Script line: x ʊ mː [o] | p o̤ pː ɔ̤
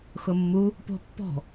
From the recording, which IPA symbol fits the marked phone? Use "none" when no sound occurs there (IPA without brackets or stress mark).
u